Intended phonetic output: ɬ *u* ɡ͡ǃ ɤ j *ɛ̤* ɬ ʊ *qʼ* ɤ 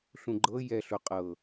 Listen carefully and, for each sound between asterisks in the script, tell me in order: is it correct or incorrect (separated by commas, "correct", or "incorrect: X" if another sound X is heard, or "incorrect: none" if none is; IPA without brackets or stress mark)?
incorrect: ũ, incorrect: ɛ, correct